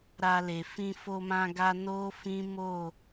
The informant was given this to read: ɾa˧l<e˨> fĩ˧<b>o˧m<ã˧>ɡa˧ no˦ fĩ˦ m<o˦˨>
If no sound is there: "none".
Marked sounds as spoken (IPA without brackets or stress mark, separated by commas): e˨, f, ã˧, o˦˨